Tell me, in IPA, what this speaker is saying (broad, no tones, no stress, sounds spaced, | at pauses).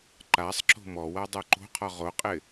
ǃ a sˤ ǁ o̤ m ɔ w a dˤ o ǃ o̤ qʰ ɔ ʁ o qʼ ɪ